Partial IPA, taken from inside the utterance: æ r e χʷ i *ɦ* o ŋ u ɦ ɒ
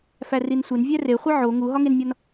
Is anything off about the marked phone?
yes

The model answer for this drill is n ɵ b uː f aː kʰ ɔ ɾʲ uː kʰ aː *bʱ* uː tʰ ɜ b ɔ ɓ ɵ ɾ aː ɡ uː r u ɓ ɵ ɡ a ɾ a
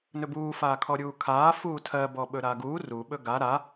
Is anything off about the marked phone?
yes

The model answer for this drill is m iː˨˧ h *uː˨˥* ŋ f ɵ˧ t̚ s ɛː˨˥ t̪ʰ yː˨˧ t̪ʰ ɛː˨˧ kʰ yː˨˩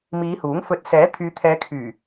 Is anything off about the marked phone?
no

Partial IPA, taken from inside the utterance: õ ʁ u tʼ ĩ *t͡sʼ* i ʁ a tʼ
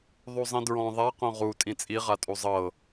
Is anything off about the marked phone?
no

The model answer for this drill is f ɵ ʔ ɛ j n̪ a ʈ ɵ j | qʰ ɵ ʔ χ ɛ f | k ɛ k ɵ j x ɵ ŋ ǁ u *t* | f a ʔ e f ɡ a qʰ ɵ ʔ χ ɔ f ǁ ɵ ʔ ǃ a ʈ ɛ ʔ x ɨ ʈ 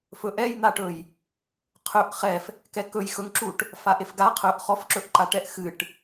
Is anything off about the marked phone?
yes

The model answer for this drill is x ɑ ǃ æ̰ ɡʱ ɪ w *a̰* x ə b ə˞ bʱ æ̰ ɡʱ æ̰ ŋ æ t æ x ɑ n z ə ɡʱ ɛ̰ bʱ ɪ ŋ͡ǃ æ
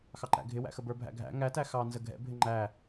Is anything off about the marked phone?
yes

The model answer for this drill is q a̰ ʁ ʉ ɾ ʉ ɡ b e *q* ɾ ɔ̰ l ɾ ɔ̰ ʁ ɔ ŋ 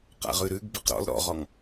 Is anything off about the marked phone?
no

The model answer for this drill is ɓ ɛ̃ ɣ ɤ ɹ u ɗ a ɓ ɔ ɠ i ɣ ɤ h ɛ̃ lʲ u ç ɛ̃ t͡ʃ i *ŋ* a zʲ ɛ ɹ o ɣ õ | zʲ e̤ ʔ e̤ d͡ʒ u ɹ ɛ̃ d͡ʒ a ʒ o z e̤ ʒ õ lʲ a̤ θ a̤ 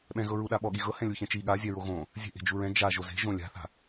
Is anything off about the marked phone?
yes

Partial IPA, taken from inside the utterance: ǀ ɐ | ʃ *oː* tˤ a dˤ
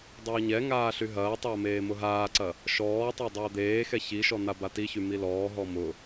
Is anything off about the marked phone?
yes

